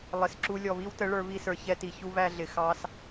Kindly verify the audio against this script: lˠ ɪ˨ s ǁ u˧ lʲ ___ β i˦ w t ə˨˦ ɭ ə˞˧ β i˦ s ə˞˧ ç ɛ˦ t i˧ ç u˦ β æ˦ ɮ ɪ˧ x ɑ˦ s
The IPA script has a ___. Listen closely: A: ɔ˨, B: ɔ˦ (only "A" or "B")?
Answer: A